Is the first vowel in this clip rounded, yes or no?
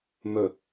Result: yes